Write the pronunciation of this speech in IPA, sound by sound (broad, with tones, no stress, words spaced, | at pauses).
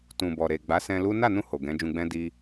tũ˨bɔ˨ ɾe˨ɡ͡ba˨˦sɛ̃˧ lu˦ na˦˨nũ˧ ho˨ɡɛ̃˨˦d͡ʒũ˧ɡ͡bɛ̃˦ di˧